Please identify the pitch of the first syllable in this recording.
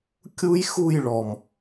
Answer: high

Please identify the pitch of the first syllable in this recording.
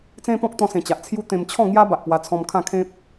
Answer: high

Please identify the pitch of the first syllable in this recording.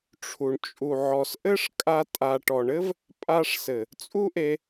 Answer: low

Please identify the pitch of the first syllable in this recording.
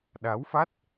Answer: rising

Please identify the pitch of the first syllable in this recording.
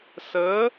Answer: rising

